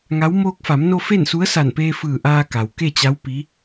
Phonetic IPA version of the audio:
ŋ a˧˥ w m oː˧ k̚ f a˩˧ m n o˧ f e˥˨ n s u˧˥ ə̯ s a˧˩ n p eː˧ f ɯː˧˩ ʔ aː˧ k a˩ w k e˥˨ t͡ɕ a˧˥ w p i˧˥

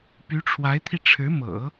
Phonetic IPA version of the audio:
p y˧˥ ʈ͡ʂʰ w a˧˥ ɪ̯ t̪ʰ i˧ ʈ͡ʂʰ ɻ̩˧˥ m ɤ̰˨˩˦

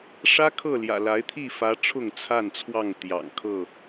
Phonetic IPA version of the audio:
ʂ ä˦ kʰ ɤ˥˨ l j ä̰˨˩ l a˨˦ ɪ̯ t̪ʰ i˥˨ f ä˨˦ ʈ͡ʂʰ ʊ˥˨ ŋ t͡sʰ a˥˨ n t͡sʰ w ɑ˥˨ ŋ t̪ j ɑ̰˨˩ ŋ kʰ ɤ˥˨

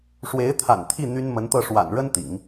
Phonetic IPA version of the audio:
ʂ w e˧˥ ɪ̯ t̪ʰ a̰˨˩ n t̪ʰ i˥˩ n̪ y˥ n m ə˧˥ n t̪ ɤ˥˩ ʂ w a̰˨˩ n ɻ ə˥ n t̪ ḭ˨˩˦ ŋ

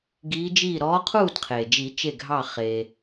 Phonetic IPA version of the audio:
ɡ iː˧˥ d͡ʒ iː˥˨ ɾ ɔː˧˥ qʰ uː˥˨ d qʰ eː˩ d͡ʒ i˨˩˦ t͡ʃ e˧˩ ɡʱ ɑ˧˩ χ eː˩

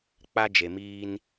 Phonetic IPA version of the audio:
k͡p a˦ d͡ʒ e˨ m iː˦ n

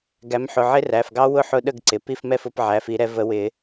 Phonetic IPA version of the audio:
ɡ æ˨˦ m ħ ʊ˩˧˩ ʕ ɪ˦˥ r æ˩˧˩ f ɡ ɑ˦˥ w ʊ˥˨ ħ ʊ˦˥ ɗ ə˥˨ ɡ ǀ ɪ˩˧˩ p i˥˨ f m ɛ˥˨ f ʊ˨˩˦ p ʕ æ˩˧˩ f i˨˩˦ ɾ ɛ˨˦ v ə˨˩˦ w ɪ˨˩˦

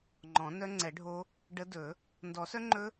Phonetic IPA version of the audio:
ŋ͡ǃ ɔ̃˨˩˦ n œ˦˥ ŋ͡ǀ ɛ˨˩˦ ɖʱ o˦˥ | ɖ ə˦˥ d ɵ˨˩˦ | n d ɔ˨˩˦ s œ˦˥ ŋ͡ǃ ɵ˦˥

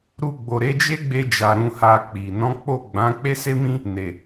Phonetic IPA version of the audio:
ɾ u˧ ɡ͡b o˨ ɾ e˨˦ d͡ʒ e˦ ɡ͡b e˧ d͡ʒ a˨ ɾ ũ˧ h a˧ k͡p i˨ n ɔ̃˨˦ k͡p o˦˨ ɡ͡b ã˨˦ k͡p e˦ s e˦ m ĩ˦ | n e˨

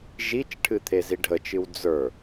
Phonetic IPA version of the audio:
ʒ i t͡ʃ ʈʰ ɨ t̪ʰ e z i ɖʱ ə t͡ʃ ɨ w d͡z ə˞

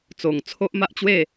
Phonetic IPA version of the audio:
t͡s o˨˩ ŋ t͡sʰ o˦ ʔ m a˦ ʔ t͡ɕ w e˥˧

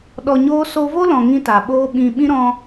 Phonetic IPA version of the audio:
ɗ ɔ˧ ɲ oː˦ s o˧ v o˦ l ɔ̃˨ ŋ ĩ˦ t a˨ ɓ oː˦ ɓ ĩ˧ ɓ ĩ˦ ɾ ɔ̃˧

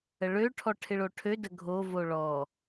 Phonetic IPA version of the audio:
ə ɭ ø ʈʰ ɔ ʈʰ ɪ ɭ o ʈʰ ø d ə ɡʱ o v o ɭ ɔ

